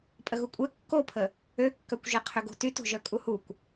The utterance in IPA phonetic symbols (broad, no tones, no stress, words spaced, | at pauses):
pʼəɣukʷʼɛ kːopʰə | økːœkʷʒɛ qʰøɡo̤tyt o̤ʒœkʼuhukʷ